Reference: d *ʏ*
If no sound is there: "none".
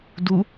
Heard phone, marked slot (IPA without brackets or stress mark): u